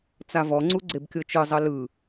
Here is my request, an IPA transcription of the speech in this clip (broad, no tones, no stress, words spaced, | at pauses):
t͡savɔŋ͡ǀu ɡ͡ǀebkʲɤt͡ʃɯzˤɤ lɯ